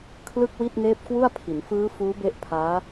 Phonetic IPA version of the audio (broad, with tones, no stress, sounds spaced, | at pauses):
kʰ l ɯ˥˩ k̚ w i˥˩ t̚ n eː˦˥ p̚ k w u˥˩ a̯ pʰ i˩˦ n f ɯː˦˥ f uː˦˥ b e˦˥ ʔ pʰ aː˦˥